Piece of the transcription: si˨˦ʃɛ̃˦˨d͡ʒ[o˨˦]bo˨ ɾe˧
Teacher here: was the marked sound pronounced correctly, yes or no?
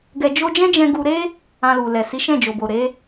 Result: no